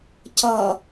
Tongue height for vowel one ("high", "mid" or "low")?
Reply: mid